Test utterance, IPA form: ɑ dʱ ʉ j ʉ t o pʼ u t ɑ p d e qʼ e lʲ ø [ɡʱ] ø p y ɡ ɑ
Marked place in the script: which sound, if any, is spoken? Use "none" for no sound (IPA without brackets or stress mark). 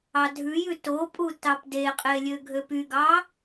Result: ɡʱ